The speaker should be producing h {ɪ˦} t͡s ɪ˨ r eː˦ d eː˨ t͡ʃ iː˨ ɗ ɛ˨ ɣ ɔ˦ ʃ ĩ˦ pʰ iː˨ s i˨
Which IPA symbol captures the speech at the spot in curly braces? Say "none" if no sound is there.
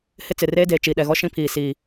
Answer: ɪ˦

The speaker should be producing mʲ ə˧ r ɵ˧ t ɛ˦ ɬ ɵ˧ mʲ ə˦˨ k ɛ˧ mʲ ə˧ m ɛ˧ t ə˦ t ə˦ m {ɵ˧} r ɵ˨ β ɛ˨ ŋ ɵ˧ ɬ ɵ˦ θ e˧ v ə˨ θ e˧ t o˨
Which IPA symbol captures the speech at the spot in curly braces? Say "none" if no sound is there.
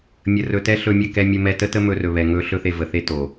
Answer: ɵ˧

